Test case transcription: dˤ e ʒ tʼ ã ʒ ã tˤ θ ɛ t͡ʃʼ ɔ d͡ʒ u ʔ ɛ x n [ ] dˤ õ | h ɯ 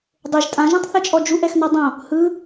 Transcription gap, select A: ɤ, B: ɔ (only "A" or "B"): B